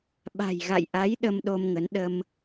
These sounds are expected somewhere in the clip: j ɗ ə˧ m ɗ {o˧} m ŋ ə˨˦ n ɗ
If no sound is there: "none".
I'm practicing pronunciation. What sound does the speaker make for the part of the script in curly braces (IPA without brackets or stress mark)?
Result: o˧